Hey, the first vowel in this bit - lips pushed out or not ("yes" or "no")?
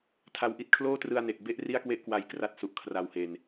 no